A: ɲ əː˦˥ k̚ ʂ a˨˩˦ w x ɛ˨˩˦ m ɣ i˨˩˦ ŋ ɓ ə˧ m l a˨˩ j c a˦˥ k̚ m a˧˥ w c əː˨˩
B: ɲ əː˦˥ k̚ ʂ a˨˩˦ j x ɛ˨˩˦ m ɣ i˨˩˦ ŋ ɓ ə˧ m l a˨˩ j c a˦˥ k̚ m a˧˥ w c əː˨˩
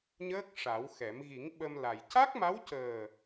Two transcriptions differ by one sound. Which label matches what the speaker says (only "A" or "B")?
A